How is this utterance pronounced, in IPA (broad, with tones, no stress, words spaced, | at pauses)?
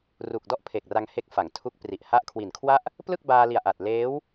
ru˨˩k̚dɔ˥˩ʔpʰe˨˩k̚ ra˧ŋhe˦˥k̚fa˩˦ŋ tʰu˦˥k̚pri˨˩ʔ ha˦˥ʔkʰwi˨˩nkʰwa˥˩ʔ | plɯ˥˩k̚baː˧li˨˩a̯ʔa˨˩t̚ leː˦˥w